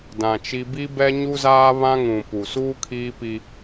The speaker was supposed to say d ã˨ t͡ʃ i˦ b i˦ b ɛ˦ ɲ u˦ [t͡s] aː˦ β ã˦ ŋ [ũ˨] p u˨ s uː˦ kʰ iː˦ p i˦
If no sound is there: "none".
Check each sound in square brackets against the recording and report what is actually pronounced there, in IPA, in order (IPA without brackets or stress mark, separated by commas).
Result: z, ũ˨